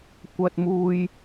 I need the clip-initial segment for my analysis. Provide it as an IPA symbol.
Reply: kʷ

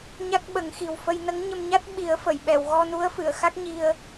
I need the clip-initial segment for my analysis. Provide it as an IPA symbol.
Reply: ɲ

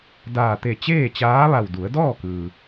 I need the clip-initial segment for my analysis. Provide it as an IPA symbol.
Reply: d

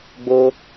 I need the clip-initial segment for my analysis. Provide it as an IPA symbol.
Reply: ɡ͡b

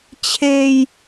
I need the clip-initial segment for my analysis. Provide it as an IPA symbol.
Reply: t͡ɕʰ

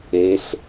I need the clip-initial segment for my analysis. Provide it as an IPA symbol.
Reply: e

